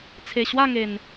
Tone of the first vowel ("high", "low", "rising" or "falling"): low